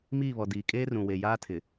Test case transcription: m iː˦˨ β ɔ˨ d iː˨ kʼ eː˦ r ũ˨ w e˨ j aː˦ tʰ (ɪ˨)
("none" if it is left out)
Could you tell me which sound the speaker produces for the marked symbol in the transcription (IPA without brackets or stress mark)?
ɪ˨